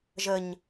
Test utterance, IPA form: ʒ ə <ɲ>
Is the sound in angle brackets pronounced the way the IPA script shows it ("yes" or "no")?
yes